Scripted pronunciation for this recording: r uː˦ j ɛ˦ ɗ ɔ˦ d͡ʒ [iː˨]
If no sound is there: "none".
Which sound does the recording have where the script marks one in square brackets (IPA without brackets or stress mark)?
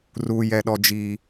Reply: iː˦